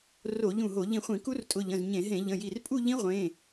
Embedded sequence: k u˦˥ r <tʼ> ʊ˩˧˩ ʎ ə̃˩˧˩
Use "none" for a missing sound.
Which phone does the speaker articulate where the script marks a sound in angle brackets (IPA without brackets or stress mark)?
tʼ